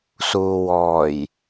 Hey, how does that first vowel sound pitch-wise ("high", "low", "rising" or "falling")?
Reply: low